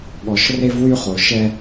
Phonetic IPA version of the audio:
ɠ ɔ˨ ʃ r e˦ v w y˦ χ o˨ ʃ ɛ˦

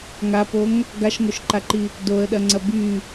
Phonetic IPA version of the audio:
ŋ a p o ŋ | ɡ a ʃ ŋ o ʃ ǃ a ǃ i | d o ə̯ ɗ ɐ ŋ͡ǀ ɐ b y

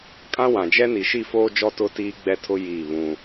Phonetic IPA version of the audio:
kʼ ã˦ w ã˨ d͡ʒ ɛ˦ n i˨ ʃ i˦˨ f oː˦ d͡ʒ ɔ˦ t ʊ˦ t iː˦ ɡ͡b ɛ˦ tʰ ʊ˦ j i˦˨ β ũ˦

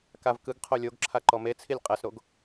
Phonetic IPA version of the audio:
k a v k ɯ ɡ qʰ o lʲ o ɡ ǁʰ a ǃ ɔ m e t͡sʰ i lʲ qʼ ɛ s ɾ o ɡ

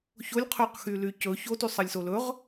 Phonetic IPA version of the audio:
ç o lʲ qʰ y q x y l y c ɵ ç o t y sˤ ɜ lʲ s o l ɵ ʁ

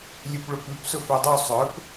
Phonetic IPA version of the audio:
lʲ ʉ p ɭ ɵ p ʉ p s ɵ f œ dˤ o sˤ œ p

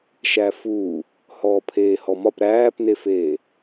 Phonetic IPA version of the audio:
ʃ æ f uː | h ɔː pʰ eː h ɔ m ɒ p ɾ æː p n e f eː

